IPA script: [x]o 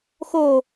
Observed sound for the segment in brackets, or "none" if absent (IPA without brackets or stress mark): x